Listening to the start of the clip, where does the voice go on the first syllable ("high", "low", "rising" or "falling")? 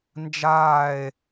falling